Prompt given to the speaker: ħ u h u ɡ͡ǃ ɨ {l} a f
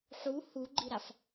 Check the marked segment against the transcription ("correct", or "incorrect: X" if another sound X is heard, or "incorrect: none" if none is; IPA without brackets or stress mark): incorrect: ɾ